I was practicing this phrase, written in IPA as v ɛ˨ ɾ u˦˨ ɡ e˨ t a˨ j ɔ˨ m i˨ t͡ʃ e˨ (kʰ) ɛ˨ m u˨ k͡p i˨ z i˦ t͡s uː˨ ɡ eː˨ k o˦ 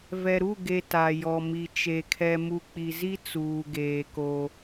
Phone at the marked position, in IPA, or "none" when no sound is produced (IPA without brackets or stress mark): kʰ